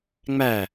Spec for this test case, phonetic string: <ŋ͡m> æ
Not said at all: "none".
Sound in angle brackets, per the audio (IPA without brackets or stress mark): ŋ͡m